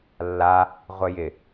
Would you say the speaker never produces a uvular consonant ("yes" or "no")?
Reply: no